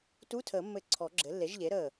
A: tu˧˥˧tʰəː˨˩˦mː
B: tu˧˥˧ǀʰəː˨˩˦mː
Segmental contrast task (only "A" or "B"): A